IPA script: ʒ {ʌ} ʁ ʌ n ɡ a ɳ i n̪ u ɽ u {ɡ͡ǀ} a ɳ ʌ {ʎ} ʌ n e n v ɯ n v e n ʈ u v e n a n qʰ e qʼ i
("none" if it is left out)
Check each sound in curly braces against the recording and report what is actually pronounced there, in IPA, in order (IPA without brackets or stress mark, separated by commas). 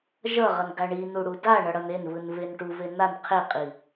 ʌ, d, ɽ